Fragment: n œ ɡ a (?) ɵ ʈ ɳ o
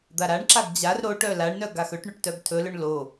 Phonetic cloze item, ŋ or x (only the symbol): x